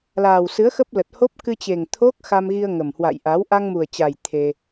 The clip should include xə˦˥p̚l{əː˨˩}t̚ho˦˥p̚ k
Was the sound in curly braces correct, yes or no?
no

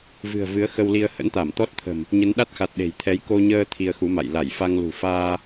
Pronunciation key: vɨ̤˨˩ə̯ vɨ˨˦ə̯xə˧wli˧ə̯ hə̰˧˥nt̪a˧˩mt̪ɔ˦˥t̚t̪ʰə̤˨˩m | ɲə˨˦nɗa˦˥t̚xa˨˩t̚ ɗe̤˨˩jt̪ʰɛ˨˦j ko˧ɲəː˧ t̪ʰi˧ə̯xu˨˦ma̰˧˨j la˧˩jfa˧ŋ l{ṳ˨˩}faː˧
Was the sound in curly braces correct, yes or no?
yes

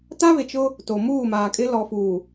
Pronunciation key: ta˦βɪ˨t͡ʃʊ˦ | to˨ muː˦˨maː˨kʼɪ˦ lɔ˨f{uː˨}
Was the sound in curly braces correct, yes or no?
yes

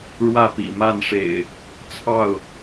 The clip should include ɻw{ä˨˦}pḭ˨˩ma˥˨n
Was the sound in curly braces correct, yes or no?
no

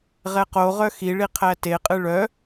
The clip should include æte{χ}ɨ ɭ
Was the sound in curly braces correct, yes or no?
no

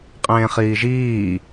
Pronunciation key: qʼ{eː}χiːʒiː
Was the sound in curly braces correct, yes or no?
no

